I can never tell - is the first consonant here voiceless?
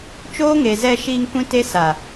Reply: yes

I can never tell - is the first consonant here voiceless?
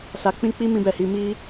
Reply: yes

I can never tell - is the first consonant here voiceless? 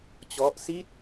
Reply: yes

